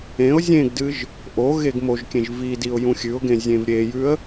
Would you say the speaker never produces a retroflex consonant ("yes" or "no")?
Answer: yes